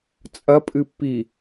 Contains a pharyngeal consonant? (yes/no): no